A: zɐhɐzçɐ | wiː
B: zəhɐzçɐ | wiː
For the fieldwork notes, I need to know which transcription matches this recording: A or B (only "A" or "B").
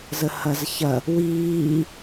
B